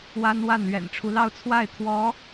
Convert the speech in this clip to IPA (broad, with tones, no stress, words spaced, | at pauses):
wa˥nwa˥˩n lɥɛ̰˨˩nʈ͡ʂʰu˦lɑ˥˧ʊ̯ t͡sʰwa˥˩ɪ̯t̪ʰwɔ˧˥